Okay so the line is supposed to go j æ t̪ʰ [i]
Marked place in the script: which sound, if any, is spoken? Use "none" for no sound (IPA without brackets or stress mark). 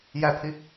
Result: i